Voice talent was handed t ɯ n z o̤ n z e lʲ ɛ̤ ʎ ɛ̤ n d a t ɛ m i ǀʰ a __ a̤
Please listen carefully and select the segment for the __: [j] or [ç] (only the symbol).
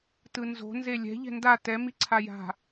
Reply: j